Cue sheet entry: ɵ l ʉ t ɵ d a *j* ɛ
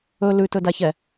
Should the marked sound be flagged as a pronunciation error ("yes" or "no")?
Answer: yes